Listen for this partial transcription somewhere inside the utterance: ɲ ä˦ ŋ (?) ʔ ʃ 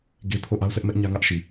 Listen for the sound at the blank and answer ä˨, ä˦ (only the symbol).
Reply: ä˦